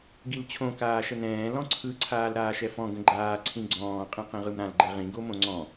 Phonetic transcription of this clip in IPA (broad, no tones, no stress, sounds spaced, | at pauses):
ɡ i l t͡ɕʰ õ k aː ʃ ə n ɛ̃ː l ɔ̃ ǀʰ ɯ ǀʰ aː l ɾ aː ʃ ɛ f ɔ̃ ɡ ə̃ ɡ͡ǃ aː ǀʰ ĩ ɡ͡ǀ ɔ̃ː qʼ ĩ q ĩ ʁ ɯ m ɾ ã l ɡ͡ǃ ɛ ʁ ĩ ɡ o m õ ŋ͡ǀ ɔ̃